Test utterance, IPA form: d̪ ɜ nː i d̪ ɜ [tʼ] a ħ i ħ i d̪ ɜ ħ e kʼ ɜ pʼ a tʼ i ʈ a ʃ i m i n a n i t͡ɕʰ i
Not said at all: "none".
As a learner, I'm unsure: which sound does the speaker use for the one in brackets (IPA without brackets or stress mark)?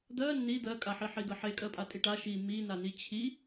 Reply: kʼ